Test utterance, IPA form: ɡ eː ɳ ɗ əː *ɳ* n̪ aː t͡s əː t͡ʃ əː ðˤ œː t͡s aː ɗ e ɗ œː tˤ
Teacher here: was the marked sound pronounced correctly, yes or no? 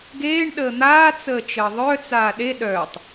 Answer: no